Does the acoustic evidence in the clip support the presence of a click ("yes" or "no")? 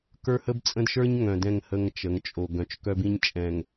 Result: no